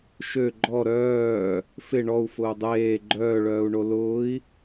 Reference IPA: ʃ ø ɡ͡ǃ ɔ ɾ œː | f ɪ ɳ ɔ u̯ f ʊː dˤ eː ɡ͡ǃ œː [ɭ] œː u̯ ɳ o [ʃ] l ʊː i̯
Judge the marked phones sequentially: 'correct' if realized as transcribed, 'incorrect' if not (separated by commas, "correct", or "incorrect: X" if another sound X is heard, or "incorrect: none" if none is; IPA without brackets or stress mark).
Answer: correct, incorrect: none